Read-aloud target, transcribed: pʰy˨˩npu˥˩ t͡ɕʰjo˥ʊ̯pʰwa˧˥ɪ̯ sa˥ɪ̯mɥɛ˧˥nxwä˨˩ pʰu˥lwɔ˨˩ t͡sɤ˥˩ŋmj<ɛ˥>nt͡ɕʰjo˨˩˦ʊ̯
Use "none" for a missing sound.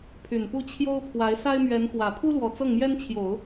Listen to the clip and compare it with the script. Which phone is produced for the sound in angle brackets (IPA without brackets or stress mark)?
ɛ˥